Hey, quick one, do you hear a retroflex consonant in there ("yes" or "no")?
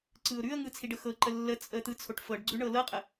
yes